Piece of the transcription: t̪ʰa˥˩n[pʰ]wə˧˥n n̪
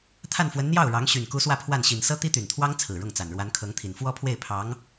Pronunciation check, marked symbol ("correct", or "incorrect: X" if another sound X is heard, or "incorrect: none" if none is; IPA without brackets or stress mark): incorrect: f